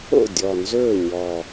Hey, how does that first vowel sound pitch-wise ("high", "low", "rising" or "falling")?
falling